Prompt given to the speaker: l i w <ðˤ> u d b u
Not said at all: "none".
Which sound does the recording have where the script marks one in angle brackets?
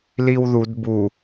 ð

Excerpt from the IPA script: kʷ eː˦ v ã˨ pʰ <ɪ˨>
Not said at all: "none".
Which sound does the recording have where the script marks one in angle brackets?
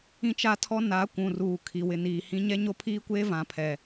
ɛ˨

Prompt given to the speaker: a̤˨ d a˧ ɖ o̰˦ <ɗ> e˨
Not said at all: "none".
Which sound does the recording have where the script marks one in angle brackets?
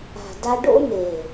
n̪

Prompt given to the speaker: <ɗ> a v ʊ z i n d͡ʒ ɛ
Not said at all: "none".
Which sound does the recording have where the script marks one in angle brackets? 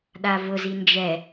ɗ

